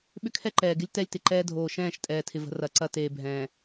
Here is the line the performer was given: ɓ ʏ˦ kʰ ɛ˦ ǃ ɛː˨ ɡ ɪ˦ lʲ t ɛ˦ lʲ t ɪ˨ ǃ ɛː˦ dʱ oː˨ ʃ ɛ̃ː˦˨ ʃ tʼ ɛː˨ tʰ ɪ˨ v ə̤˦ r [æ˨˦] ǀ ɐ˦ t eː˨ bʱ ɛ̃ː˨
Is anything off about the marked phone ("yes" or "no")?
yes